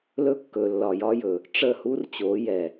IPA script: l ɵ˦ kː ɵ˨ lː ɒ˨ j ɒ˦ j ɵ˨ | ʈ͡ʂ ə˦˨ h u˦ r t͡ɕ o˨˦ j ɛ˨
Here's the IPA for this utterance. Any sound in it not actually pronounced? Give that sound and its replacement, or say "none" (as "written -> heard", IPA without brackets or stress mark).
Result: none